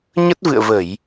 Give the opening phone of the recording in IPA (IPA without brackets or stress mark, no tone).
ɲ